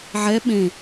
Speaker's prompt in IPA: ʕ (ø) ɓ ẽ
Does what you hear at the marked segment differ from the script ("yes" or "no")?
yes